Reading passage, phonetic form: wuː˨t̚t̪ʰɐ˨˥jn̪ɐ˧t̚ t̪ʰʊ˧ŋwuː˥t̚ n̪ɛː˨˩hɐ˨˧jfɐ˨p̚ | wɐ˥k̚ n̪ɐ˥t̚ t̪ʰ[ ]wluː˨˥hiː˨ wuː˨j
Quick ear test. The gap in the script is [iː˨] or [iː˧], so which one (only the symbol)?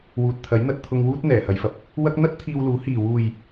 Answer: iː˧